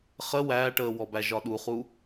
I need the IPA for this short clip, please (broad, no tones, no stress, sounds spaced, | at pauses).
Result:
χ ə w æː ʈ əː w ɔ b æ ʒ ɒ ɗ u χ u